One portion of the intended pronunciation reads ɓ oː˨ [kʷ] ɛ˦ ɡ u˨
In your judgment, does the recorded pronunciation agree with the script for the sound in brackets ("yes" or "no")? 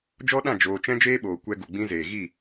yes